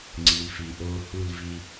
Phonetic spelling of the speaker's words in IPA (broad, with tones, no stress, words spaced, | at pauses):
ŋ͡ǀi˨lfi˨ʔoː˧ hu˦˨lvi˧